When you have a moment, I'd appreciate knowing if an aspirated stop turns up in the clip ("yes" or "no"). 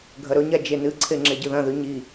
yes